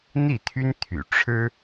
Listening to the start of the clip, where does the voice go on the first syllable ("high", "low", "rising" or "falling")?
falling